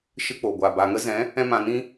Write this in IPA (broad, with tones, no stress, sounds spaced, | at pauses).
ʃ ɨ˧ k͡p o˨ ɡʷ a˨ b a˨ ŋ ə˦ z ɛ̃˨˦ | ɛ̃˦ m ã˧ n ĩ˦